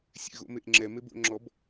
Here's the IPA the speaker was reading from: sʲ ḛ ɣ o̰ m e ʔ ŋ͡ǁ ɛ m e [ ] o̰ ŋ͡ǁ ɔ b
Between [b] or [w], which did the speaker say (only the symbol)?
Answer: b